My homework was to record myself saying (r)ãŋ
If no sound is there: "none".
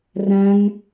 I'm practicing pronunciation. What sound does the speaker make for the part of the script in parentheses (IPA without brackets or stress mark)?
r